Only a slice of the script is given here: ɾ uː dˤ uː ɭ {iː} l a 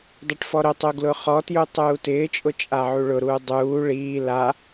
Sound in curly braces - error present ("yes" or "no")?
no